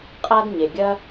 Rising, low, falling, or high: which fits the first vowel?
high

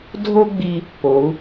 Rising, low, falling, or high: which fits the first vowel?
high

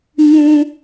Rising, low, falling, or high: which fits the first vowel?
high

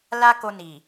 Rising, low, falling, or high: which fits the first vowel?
high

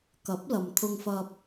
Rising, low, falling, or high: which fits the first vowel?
rising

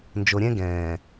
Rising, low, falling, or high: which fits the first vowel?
low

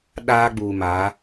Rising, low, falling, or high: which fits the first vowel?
high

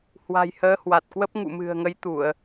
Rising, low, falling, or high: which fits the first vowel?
low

